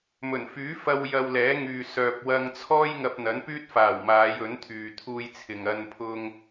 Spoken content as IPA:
m ɵ˨˩ n f yː˨˥ f ɐ˧ w j ɐ˧ w l ɛː˨˥ ŋ yː˨ s œː˨ p̚ w ɐ˧ ŋ t͡sʰ ɔː˥ j ŋ ɐ˧ p̚ n̪ ɐ˨˥ n p yː˥ t̚ f aː˨˩ w m aː˨˧ j ɵ˨˥ n t̪ʰ yː˨ t̪ʰ uː˧ j t͡sʰ ɪ˨ ŋ ɐ˧ n pʰ ʊ˧ ŋ

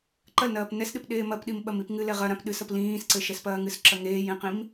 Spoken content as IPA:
ǃ ɐ l n ɐː p n ɛ s ɗ ɨ p ɗ eː m ɐ p ɗ i m ɓ ɐ m i p ŋ ɨ l ɛ ʁ ɐ ɾ ã p ɗ ɨ s ɐ p l ĩː s ǀ ɘ ʃ ɛ s p ɐː ŋ ɨ s ǁ ɐ ŋ eː j ĩ q ĩ m

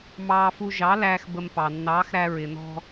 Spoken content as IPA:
m ɑː˧ f u˧ ʒ ɑ˨˥ l æː˧ x b ə˧ m p ɑ˩ nː ɑː˨˥ x ɾ æ˧ ɹ ɪ˩ n ɔ̤˧

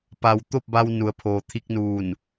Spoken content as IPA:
p a˩ w t̪ o˥˨ p̚ b a˧ w n u˩˧ ə̯ pʰ oː˩ t̪ʰ i˧ k̚ n uː˧˩ n

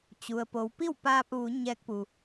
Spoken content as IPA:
t͡ɕ u˩ ə̯ p o˩˧ w p i˥˨ w p aː˧ p̚ ʋ u˩˧ ɲ ɛː˧˥ k̚ p u˩

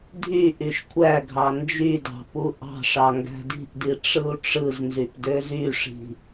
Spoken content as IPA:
dʱ y ʔ y ʃ kʷʰ æ ɡʱ ɑ n d͡ʒ y d ɑ̤ p u ʔ ɑ̤ ʂ ɑ ŋ ɡ æ̤ d i̤ ʔ d i ʈ͡ʂ ɯ u̯ ʈ͡ʂ ɯ z n z y p d ø z y ʂ i̤

